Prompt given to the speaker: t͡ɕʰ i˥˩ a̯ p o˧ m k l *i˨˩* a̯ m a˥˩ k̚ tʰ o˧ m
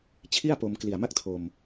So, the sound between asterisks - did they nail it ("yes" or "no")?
yes